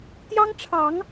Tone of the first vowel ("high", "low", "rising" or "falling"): high